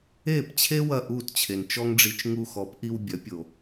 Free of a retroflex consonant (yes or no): no